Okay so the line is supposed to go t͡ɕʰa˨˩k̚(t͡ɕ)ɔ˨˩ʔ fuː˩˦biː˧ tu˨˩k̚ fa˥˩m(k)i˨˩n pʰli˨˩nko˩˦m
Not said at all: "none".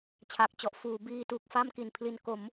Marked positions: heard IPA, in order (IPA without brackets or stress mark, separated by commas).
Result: t͡ɕ, k